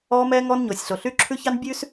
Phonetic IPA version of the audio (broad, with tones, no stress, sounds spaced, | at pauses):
ɔː˦ m ɛː˦ ŋ ɔ˦ n ɲ o˨ sʲ ɬ o˨ ɬ yː˦ ǁʰ ʉ˦ ç ɑ˦ n bʲ ʉ˦ s